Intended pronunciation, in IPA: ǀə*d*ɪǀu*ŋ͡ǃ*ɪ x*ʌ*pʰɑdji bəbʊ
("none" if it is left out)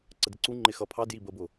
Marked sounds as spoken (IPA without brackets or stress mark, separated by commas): d, ŋ͡ǃ, ʌ